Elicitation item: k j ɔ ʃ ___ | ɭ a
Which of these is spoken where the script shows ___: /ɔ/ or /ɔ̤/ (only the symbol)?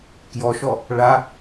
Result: ɔ